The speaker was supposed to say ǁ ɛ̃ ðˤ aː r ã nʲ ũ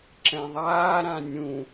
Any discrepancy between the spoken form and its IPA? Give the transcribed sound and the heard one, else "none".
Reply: r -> ɾ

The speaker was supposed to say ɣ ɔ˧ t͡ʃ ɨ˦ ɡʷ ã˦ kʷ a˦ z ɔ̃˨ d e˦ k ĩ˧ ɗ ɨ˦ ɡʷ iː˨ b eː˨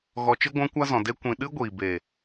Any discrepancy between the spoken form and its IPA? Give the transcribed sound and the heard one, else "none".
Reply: k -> kʷ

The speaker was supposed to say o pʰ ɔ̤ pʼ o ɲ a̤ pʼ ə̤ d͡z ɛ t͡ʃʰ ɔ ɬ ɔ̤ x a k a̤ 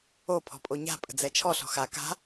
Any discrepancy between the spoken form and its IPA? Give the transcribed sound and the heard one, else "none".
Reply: none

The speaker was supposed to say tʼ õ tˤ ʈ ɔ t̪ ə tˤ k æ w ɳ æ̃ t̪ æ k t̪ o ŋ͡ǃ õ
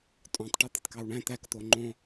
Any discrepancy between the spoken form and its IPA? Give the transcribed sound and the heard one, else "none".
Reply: none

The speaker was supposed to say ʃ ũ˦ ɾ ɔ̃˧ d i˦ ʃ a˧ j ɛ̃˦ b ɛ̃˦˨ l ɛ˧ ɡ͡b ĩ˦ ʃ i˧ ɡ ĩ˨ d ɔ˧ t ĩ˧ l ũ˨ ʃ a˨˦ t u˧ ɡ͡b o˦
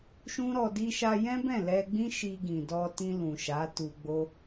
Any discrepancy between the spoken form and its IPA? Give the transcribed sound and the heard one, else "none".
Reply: ɔ̃˧ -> ɔ˧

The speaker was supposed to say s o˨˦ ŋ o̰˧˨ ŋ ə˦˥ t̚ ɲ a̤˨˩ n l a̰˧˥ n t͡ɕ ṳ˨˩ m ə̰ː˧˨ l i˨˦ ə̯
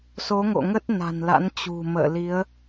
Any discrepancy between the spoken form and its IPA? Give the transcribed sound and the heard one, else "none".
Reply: ɲ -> n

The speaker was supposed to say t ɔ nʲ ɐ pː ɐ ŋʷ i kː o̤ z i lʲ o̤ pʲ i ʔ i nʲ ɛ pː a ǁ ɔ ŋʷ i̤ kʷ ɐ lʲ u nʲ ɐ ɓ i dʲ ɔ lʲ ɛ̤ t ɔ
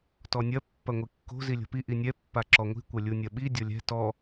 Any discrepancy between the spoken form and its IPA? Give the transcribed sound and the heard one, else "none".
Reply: pʲ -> p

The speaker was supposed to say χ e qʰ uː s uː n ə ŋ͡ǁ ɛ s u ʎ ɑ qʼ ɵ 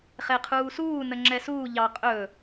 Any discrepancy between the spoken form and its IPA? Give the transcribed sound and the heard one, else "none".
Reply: u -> uː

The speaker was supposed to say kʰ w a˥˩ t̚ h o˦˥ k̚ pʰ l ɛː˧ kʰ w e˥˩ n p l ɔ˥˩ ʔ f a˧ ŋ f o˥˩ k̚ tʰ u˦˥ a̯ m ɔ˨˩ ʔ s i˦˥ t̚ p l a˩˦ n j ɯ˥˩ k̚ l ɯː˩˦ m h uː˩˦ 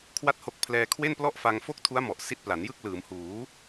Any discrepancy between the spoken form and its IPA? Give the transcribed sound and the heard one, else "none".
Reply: none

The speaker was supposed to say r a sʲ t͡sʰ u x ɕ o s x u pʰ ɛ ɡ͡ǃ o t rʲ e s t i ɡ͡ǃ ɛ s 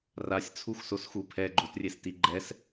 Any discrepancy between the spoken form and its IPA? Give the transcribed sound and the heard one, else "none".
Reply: ɕ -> s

